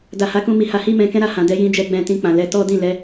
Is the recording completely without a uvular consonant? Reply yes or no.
yes